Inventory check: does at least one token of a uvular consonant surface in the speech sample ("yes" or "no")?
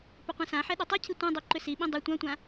yes